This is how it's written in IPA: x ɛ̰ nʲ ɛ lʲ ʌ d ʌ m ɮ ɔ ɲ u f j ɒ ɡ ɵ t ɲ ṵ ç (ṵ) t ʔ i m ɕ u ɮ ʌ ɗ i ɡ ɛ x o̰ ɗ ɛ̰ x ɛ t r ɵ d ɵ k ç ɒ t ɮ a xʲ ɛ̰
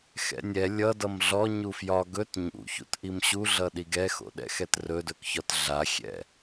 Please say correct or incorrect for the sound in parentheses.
correct